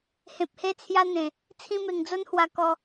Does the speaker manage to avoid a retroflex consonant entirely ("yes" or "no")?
yes